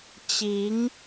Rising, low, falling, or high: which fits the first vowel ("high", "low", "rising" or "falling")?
rising